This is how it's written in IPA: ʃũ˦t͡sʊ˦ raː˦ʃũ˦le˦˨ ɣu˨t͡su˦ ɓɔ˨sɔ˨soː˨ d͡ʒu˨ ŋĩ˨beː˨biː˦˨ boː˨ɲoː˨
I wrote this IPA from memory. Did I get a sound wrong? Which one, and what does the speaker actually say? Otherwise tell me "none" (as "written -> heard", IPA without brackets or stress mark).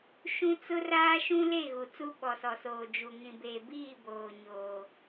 none